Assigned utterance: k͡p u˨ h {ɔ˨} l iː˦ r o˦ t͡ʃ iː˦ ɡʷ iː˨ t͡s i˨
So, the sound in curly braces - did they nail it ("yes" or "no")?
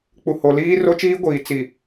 no